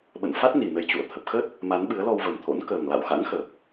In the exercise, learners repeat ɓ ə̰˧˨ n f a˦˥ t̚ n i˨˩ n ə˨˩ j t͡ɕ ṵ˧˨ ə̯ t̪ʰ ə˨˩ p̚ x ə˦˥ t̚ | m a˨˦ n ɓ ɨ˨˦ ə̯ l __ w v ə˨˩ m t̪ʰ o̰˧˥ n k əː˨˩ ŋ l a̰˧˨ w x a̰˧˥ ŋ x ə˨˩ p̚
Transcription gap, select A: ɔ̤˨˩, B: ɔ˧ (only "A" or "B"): B